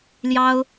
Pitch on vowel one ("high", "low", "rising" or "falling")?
high